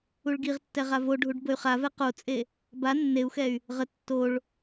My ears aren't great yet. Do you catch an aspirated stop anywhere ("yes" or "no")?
no